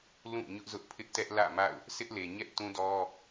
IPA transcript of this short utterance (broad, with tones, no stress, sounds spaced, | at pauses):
l ũ˦˨ ɲ ʊ˦ ʔ z ʊ˦ ʔ pʰ ɪ˦ ʔ t ɛ˦ ʔ l ä̰˦˨ m a̰˦˨ ʊ̯ | sʰ ɪ˦ ʔ l e˨ ɲ ɛ˦ ʔ t ũ˦ d ɔ˦